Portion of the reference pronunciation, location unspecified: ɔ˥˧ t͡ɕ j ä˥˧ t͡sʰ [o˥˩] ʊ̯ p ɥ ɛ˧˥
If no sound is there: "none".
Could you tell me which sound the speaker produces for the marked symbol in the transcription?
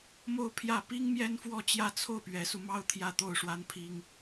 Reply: o˥˩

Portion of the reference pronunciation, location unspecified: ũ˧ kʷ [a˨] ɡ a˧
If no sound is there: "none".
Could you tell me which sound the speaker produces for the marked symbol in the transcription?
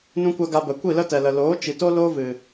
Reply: a˧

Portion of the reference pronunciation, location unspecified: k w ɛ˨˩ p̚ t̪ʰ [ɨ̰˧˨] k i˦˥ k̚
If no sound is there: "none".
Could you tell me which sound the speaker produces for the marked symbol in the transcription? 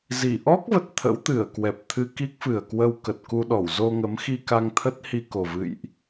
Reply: ɨ˧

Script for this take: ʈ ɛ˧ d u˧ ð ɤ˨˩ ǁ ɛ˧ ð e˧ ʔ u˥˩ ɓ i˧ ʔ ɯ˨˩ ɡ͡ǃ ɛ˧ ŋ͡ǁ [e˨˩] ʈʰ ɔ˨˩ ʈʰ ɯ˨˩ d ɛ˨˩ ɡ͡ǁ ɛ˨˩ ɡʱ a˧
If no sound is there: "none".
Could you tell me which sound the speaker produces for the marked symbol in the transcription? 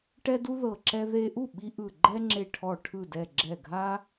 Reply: e˨˩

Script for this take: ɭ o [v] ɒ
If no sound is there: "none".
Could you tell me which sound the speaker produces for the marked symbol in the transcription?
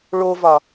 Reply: v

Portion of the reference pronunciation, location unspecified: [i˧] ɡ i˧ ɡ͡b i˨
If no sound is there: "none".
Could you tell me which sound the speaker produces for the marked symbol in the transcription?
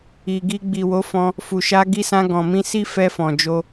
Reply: i˨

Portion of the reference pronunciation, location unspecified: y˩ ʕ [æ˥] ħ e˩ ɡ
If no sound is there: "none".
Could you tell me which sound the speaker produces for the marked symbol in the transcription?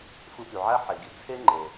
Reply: æ˥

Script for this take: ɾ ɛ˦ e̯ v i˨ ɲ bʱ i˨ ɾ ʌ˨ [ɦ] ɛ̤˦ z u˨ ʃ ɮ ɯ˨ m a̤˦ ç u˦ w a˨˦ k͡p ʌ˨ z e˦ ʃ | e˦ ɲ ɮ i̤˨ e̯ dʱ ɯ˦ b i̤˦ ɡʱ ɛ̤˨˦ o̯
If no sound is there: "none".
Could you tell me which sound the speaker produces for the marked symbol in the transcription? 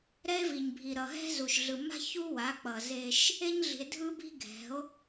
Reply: ɦ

